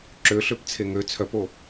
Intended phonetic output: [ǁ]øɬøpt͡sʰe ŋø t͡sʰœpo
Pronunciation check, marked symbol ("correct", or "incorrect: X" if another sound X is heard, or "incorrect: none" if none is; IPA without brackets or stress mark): correct